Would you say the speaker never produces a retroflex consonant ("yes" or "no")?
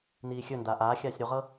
yes